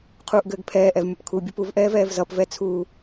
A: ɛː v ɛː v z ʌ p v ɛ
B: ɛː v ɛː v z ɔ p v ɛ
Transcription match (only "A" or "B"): A